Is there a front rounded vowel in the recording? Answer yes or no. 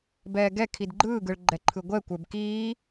no